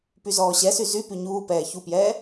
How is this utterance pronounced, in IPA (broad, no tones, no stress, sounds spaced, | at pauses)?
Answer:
p y z ɔː ɕ ɛ s y z y p y ɲ uː p ɛː ç u p j ɛː